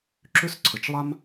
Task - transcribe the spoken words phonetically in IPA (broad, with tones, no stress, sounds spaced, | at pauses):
ǁ ʏ˥ s ǀʰ ə˨˩ t͡ʃ lˠ a˥ m